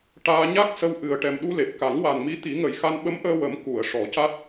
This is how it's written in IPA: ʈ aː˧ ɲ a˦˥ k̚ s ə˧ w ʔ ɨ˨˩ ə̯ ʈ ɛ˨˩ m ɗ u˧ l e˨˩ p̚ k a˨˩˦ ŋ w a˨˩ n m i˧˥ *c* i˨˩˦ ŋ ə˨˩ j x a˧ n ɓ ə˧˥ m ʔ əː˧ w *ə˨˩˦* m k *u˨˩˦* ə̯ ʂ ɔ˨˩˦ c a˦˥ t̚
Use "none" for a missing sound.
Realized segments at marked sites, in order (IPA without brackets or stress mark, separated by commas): t̪, ə˨˩˦, u˨˩˨